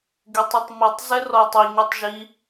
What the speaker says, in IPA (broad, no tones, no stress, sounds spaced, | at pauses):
ɡ e tˤ i tˤ m i tˤ z ɛ r ɔ tˤ i ɲ ɛ tˤ ʒ i